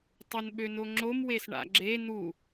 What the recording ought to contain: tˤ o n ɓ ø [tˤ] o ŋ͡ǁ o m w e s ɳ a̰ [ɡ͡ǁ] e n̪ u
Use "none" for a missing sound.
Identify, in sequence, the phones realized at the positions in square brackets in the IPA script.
n, ɡ͡ǁ

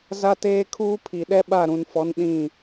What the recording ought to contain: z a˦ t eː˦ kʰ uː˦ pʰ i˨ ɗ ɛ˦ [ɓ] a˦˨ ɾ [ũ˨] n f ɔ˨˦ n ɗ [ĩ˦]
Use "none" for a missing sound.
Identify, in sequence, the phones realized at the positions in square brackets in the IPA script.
ɓ, ũ˨, ĩ˦˨

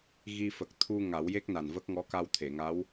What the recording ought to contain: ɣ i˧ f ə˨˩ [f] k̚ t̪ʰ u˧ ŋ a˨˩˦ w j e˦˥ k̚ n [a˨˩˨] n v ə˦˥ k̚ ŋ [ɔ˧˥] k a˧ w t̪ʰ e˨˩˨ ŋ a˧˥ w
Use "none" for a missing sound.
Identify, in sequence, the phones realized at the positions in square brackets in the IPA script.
none, a˨˩, ɔ˧˥

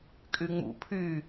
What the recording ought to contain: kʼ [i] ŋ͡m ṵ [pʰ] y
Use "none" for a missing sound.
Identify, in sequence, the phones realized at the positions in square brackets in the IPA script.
y, pʰ

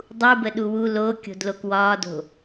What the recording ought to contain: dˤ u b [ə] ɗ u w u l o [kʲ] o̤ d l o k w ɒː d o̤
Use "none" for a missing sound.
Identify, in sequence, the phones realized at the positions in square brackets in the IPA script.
ə, kʲ

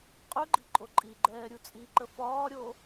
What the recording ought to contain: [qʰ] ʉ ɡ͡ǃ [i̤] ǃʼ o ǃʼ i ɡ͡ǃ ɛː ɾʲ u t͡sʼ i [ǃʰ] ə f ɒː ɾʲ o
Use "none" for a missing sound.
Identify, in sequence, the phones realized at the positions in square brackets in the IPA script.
qʼ, i̤, ǃ

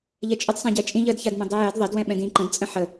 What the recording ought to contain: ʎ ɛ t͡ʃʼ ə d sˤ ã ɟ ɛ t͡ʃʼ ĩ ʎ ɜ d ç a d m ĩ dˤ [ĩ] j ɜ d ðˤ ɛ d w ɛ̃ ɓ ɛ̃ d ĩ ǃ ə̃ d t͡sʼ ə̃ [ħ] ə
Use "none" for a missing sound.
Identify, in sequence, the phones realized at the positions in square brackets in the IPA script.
i, ħ

